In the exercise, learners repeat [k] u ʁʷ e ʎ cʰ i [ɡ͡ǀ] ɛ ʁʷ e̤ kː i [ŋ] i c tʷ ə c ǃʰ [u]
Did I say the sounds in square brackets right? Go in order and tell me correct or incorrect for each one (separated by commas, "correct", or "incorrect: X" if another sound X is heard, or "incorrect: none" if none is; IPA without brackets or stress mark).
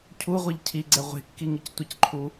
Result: incorrect: cʰ, correct, correct, correct